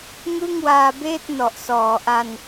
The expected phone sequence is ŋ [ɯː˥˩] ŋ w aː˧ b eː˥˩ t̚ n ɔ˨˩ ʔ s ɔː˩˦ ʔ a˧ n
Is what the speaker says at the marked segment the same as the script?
no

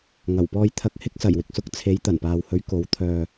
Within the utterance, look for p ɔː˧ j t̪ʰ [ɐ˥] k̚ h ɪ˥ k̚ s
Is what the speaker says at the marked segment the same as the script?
no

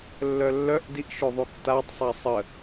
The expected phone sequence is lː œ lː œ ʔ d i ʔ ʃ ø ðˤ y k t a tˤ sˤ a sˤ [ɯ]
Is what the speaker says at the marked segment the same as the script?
no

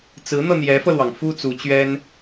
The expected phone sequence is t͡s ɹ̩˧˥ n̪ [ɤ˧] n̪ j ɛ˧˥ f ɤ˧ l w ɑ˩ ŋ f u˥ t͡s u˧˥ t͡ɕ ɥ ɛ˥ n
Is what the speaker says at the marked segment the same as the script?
yes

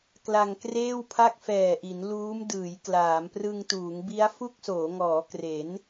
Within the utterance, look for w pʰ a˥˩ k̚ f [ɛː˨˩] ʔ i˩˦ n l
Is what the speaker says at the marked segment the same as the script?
yes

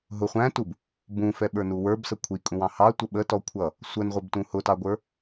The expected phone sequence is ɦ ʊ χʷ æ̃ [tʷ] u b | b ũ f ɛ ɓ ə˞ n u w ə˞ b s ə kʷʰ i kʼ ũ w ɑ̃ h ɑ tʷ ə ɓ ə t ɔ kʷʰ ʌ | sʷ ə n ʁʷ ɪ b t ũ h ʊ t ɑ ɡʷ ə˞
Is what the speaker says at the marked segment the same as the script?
no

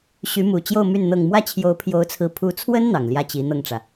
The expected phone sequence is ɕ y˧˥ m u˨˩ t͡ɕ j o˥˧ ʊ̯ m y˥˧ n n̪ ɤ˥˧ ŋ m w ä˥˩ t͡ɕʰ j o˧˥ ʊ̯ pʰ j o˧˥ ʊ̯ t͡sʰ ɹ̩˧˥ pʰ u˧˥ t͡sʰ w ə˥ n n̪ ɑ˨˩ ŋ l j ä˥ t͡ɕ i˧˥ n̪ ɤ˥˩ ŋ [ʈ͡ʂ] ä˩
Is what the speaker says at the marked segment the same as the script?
yes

